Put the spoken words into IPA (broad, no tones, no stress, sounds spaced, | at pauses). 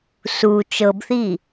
s u t͡ʃ ɤ b θ i